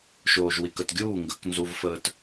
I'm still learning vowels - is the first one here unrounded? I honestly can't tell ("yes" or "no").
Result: no